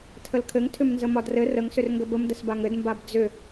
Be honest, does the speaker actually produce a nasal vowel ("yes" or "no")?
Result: no